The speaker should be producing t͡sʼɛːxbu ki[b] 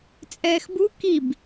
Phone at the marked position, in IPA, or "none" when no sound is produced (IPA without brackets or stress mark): b